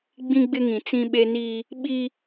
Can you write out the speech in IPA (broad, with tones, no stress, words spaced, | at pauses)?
ɡ͡bĩ˦ɡ͡bɪ˦ŋĩ˨ t͡sĩ˦ɓe˦niː˦ | ɓi˦